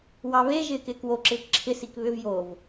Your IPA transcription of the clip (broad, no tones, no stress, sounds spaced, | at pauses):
w ɑ β e ʒ ɪː k ɪː k w o ǁ ɪː k ǁʰ ɪ s i k β ʏ v j o v